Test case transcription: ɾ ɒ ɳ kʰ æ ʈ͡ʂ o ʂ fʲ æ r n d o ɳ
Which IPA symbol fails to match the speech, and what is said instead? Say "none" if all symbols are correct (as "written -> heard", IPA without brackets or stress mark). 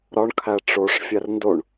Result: none